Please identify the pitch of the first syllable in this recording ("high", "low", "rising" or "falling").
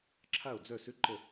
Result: falling